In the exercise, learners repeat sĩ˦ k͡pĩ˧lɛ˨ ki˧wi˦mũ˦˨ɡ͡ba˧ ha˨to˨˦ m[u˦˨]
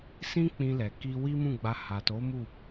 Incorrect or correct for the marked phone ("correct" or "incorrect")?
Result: correct